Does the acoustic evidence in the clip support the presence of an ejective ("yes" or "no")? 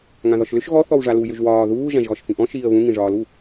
no